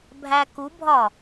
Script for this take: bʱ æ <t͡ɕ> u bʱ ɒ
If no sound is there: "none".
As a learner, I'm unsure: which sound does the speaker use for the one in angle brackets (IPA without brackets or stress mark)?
k